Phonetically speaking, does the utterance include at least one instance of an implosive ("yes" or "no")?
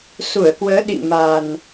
yes